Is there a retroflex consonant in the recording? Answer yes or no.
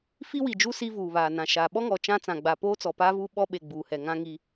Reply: no